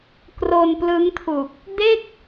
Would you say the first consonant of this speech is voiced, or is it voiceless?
voiceless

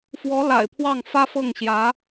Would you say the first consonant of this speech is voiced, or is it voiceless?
voiceless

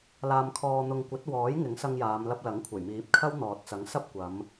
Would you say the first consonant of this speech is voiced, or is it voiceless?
voiced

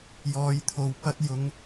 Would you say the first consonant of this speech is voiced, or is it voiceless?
voiced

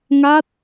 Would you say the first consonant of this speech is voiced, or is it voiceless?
voiced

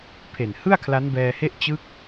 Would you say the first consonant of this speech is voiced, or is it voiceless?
voiceless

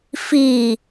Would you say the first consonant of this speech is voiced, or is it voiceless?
voiceless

